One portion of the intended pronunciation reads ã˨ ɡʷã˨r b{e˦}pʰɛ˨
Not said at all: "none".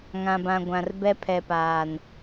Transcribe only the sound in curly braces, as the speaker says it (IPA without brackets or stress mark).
ɛ˦